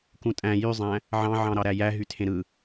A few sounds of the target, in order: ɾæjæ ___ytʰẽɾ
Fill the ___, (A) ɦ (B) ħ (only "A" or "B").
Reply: A